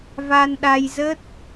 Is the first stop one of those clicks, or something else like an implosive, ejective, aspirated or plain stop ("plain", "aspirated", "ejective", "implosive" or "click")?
implosive